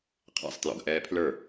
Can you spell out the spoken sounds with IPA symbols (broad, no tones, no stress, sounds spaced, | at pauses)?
qʰ æ̰ sˤ t j ɔ̰ ɡ ʔ ɛː pʰ l ə˞